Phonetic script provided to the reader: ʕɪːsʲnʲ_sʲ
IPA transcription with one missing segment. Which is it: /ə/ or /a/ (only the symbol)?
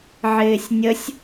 ə